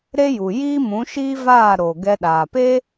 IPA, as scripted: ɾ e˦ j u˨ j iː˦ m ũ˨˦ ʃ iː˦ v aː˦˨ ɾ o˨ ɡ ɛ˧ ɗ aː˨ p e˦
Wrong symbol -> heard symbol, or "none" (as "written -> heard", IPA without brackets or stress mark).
none